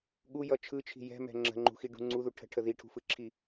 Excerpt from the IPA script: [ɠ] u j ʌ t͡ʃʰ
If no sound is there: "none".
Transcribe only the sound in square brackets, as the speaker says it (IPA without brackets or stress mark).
ɠ